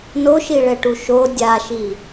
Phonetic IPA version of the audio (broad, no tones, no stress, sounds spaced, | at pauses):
n o ʃ i ɭ ɛ ʈ u ʃ o dʲ a ʃ i